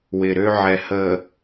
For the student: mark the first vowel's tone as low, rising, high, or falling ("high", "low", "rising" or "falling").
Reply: low